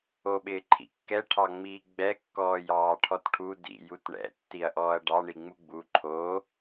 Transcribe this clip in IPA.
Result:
o ɓ ɪː ǃʰ ḭ kː ɛ ʈʰ ɑ ŋ͡m iː ɡ͡b ɛ kː ɔː j ɑː ʈʰ ɔ t ʈʰ u d ḭ j u t ɳ ɛ̰ tː i ɐ̯ ʔ ɔː ɐ̯ ɖ ɑ ɳ i ŋ͡m u ɡ͡b u ǃʰ o

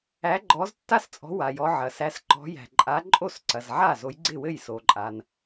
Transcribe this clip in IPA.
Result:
æ˨˦ ɡ͡ǃ ɔ˨˦ z tː a˥˩ s t͡sʼ ɔ̤˨˦ w a˩ j ɔ˨˦ ʕ ɐ˩ s æ˨˦ s ǃ ɔ̤˨˦ j æ̤˩ ǃʼ a˨˦ ǃʼ o˥˩ s ǀ ɐ˩ z ʕ a˥˩ z o˨˦ j ɡ͡ǀ ɪ˥˩ w ɘ˥˩ j s o˩ ǃʼ a˩ n

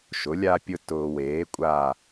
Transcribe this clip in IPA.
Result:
ʃ ʊ˩˥ lʲ a˦ pʲ ʊ˦ t ʊː˨ w eː˩˥ kʷʼ a˦˨

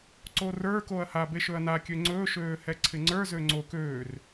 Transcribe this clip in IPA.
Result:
ǀ o r ə˞ k o ɐ̯ h a b e ʃ ɵ ɐ̯ n a kʲ ø ŋ͡ǀ ɵː ʃ øː h ɛ ǀʰ ɪ ŋ͡ǀ ə˞ z ø ŋ͡ǀ o k øː r

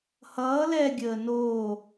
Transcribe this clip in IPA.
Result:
h ʌː l ɛ ɡʲ əː n oː

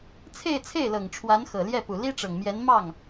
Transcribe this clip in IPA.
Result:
t͡sʰ e˥˧ ɪ̯ t͡sʰ e˥˩ ɪ̯ l ɤ˨˩ ŋ ʈ͡ʂʰ w a˧˥ n x ɤ˨˩ l j ɛ˥˩ p u˨˩ l i˥ ʈ͡ʂ ɤ˨˩ ŋ m j ɛ˧˥ n m ɑ˥˩ ŋ

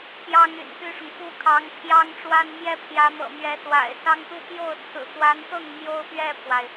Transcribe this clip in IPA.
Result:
p j ɑ˥ ŋ y̰˨˩ n p y˥ ʂ ʊ˨ ŋ k u˥˩ kʰ ɑ˧˥ ŋ pʰ j ɑ˥ ŋ ʈ͡ʂ w a˥ n m j ɛ˥ pʰ j ä˧˥ m ɤ̰˨˩ m ɥ ɛ˧˥ s w a̰˨˩ ɪ̯ s ɑ˥ ŋ t̪ u˥˧ p j o˥˩ ʊ̯ t͡sʰ ɹ̩˨˩ t̪ w a˧˥ n t̪ ɤ˥˩ ŋ m j o˥ ʊ̯ p ɥ ɛ˥˩ pʰ w a˩ ɪ̯

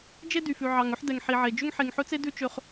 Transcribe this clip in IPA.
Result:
d͡ʒ e˦ d y˨ f ʉ˨ ʕ ɑ˨ ŋ ɵ˦ ħ d ɛ˨ ŋ ħ i˨ ʕ e˨ d͡ʒ ø˧ ŋ ħ e˨ ŋ ħ ɵ˧ t͡s e˧ d ʉ˦ t͡ʃ ø˧ χ

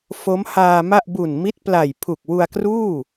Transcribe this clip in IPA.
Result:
f o˦˥ m h aː˧ m a˥˩ ʔ b u˨˩ n m i˦˥ t̚ p l a˨˩ j pʰ u˨˩ k̚ w u˧ a̯ k r uː˥˩

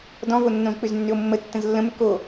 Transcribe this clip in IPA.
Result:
d ɔ̃ v o nː õ z k͡p ʏ z nː ʏ o̯ mː ə tː ə̃ z lː ə̃ m ʏ k o

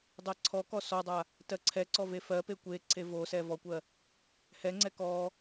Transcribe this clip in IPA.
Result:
dˤ ɜ ǀʰ ɔ k ɔ s ɔ dˤ a | t ɜ ǀʰ ɛ ǀ ɔ v e f ɜ p e kʷ e ǀʰ e v o s ɛ v ɔ kʷ ɜ | h ɛ ŋ͡ǀ ɛ k ɔ

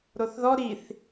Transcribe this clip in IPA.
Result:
ɾ o θ ð ɔ ɾ i θ

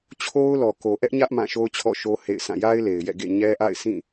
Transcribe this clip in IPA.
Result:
t͡ɕʰ o˦ ʊ̯ l ɔ˨ k o˨ ʔ ɛ˦ ʔ ɲ ä˦ ʔ m ã˦˨ ʃ o˦ ʊ̯ t͡ɕʰ ɔ̰˦˨ ʃ o˦ h ḛ˦˨ ɪ̯ sʰ ã˦˨ j a˦ ɪ̯ l e˨ ɪ̯ j ɛ̰˦˨ ɡ ḛ˦˨ ɲ ɛ˦ ʔ a̰˦˨ ɪ̯ sʰ ĩ˦˨

